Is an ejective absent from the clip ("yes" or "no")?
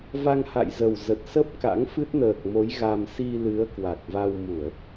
yes